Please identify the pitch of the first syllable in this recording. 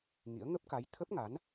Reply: rising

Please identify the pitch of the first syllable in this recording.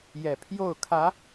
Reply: low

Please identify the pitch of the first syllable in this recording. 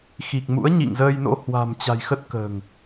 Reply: low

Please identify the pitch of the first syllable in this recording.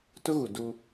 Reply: high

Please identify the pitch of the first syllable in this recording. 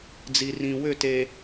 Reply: low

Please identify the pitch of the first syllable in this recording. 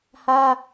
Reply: high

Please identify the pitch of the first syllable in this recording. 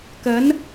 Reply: rising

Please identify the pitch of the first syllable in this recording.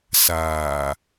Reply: low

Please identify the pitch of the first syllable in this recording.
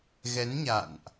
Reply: rising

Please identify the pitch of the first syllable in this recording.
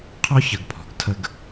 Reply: high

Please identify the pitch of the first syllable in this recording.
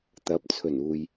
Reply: rising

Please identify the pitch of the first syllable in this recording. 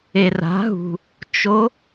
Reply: low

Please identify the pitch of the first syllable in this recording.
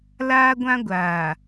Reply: high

